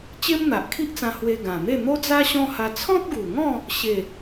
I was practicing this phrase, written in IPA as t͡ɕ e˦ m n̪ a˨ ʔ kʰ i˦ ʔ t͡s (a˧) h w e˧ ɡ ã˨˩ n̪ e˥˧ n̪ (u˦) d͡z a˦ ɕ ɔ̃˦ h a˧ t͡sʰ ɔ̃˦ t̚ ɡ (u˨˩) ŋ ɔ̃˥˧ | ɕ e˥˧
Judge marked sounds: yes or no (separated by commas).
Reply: no, no, yes